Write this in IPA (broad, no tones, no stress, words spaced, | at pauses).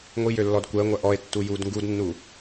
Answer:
ŋʷijø lːɔdkʷəːŋʷɐ ʔɔe̯ tːujuːdŋɡudnːu